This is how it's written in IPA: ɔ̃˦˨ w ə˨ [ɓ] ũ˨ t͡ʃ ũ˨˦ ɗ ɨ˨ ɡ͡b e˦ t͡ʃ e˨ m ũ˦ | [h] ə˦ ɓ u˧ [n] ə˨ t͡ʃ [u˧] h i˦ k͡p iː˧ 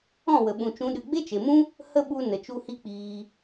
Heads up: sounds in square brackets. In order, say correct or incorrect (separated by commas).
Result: correct, correct, correct, correct